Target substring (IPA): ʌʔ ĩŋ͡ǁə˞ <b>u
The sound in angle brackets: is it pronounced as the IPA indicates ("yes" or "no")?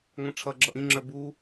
yes